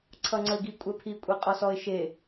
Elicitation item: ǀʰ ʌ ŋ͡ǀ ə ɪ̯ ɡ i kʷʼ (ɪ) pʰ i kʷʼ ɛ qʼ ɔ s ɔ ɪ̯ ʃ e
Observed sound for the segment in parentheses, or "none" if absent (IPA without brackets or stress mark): ɛ